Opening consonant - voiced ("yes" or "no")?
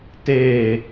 no